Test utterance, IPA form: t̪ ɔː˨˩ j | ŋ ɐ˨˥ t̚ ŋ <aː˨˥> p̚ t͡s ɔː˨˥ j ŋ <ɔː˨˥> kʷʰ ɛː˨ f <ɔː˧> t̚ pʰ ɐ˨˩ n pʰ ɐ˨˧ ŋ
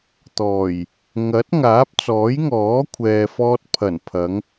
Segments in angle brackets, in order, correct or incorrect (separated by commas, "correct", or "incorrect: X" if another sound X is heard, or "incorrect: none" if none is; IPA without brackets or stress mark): correct, correct, correct